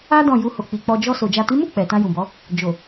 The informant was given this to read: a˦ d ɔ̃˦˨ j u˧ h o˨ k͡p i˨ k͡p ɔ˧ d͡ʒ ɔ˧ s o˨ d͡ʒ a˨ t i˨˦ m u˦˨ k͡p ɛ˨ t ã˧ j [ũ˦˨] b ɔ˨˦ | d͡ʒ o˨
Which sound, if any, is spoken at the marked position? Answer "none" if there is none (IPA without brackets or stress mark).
ũ˨